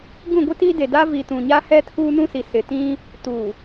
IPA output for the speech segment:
ɡ ũ˦˨ ɡʷ i˦ t iː˦ d e˨ d a˦ v i˨ t ũ˨ ɲ a˦ h ɛ˦ tʰ uː˦ n ũ˦ s i˨ s ɪ˨ t ĩ˦ | t uː˨

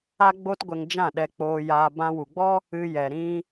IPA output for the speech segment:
a˦ ɡ͡b o˦ t ɡʷ ɛ˧ ŋ d͡ʒ ã˦˨ ɗ ɛ˧ k͡p oː˧ j aː˧ b ã˧ w u˨ ɡ͡b ɔ˦ | ɨ˧ j ɛ˨ ɾ ĩ˧

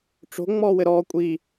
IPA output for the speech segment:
ʈ͡ʂ o̤ ŋ͡m ɔː w ɘ ɾ ɔː kʷʼ i

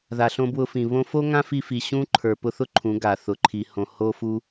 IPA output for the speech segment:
ð a˨ ɬ õ˧ b w ʊ˧ f ĩ˨ β õ˧ f o˦ ŋ ã˦ f i˧ f i˨ ɕ ũ˦ ǃʰ ə˞˨ p ʊ˧ θ ʊ˦ ǃʰ ũ˨˦ ɡ a˨ θ ʊ˨ ǃʰ i˨ h õ˨ h o˦ f u˦

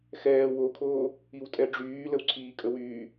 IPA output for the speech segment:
x ɛː w o kʰ oː | i w tʼ ɛ ɖ͡ʐ yː l ə w ǀʰ iː kʼ ə w yː

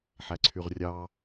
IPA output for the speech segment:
ħ æ ǀʰ y ʁ rʲ ɑ

